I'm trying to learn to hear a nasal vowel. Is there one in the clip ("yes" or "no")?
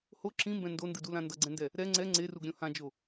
yes